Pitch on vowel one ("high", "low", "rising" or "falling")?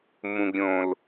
low